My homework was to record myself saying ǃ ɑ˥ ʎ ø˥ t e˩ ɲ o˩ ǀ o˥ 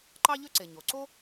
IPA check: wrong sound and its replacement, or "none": t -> ǀ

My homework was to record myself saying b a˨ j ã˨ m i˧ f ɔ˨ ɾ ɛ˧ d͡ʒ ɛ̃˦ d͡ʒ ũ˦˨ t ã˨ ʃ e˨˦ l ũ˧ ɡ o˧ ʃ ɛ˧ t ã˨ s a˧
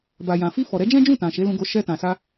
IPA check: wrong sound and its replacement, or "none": m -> f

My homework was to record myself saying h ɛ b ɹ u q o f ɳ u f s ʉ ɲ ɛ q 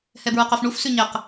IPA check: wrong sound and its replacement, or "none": none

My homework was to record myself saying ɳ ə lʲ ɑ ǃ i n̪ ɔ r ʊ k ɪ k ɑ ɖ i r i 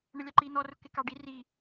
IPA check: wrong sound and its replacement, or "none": none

